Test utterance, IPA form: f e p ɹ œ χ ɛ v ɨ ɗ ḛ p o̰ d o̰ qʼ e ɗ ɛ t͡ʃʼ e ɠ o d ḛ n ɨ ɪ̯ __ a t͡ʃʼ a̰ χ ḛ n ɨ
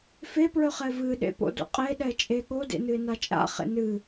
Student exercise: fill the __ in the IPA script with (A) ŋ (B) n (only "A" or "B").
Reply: B